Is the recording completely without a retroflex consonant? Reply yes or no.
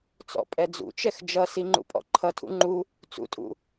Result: yes